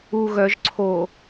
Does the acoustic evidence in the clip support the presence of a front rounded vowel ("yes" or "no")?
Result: yes